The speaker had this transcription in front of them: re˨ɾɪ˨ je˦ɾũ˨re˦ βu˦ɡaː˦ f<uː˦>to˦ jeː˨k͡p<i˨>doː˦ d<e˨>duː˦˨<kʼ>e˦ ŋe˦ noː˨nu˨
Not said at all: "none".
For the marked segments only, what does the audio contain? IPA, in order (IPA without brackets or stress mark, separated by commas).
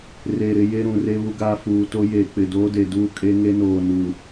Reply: uː˨, ɪ˨, e˨, kʼ